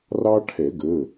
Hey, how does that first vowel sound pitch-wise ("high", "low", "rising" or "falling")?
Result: high